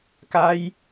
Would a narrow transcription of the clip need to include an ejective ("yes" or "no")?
no